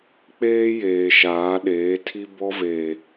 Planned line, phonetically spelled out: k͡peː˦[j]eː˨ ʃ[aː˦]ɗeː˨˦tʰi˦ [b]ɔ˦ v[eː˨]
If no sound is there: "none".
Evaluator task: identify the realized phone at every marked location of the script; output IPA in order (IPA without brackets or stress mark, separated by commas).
j, aː˨˦, b, eː˨